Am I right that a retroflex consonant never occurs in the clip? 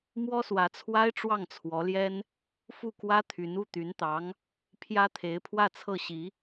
no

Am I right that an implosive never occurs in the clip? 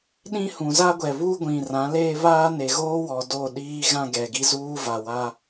no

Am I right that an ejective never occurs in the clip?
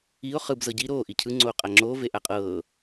no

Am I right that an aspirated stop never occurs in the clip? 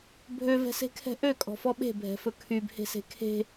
no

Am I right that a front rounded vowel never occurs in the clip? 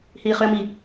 no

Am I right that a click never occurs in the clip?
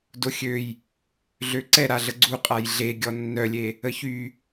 no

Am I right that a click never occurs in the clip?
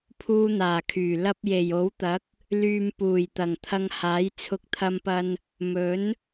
yes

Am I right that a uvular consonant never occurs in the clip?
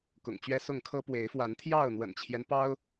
yes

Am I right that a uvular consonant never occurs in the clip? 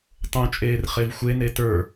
no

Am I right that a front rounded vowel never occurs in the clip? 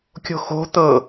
yes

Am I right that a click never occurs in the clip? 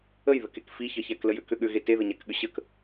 yes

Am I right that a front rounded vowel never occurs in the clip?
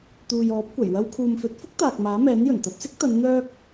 no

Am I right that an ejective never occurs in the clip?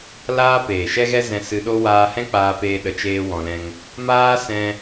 yes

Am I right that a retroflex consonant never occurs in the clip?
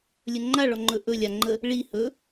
no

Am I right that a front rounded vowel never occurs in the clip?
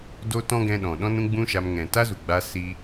yes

